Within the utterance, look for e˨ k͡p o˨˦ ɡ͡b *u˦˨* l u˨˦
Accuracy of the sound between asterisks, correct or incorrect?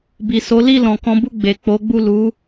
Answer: correct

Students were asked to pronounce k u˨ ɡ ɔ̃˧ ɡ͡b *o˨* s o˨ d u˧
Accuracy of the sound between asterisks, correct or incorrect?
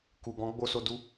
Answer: correct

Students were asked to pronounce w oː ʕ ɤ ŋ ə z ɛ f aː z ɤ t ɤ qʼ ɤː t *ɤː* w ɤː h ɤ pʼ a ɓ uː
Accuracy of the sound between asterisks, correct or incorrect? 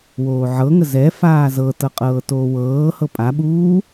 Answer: incorrect: oː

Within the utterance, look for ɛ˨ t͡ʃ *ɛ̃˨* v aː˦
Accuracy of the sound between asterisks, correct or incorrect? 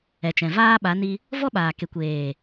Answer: correct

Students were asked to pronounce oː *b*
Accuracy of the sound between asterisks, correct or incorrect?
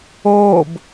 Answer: correct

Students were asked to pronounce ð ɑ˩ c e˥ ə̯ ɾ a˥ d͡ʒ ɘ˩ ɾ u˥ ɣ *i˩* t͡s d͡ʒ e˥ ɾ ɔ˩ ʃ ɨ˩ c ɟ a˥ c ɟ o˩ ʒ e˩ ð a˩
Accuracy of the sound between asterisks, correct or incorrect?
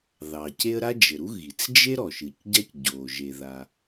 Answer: correct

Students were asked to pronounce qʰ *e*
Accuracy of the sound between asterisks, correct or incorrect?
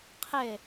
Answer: correct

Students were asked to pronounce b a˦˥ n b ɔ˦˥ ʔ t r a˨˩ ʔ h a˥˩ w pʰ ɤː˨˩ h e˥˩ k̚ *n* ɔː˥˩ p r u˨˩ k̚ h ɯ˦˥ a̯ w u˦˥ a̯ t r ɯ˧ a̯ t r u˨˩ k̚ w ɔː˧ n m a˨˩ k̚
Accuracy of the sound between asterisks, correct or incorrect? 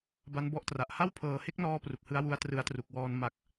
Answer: correct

